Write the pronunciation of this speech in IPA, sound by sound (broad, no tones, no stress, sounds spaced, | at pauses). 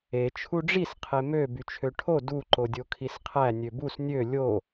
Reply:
e t͡ʃʰ u ɖ͡ʐ i s qʰ e m ø b y t͡ʃʰ ø ʈʰ o d u ǃ o dʲ o kʰ i s qʰ æ nʲ ø b u s nʲ ø lʲ o